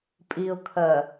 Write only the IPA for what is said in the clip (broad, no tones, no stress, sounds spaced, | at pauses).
pʼ i ʊ̯ kʰ ɜ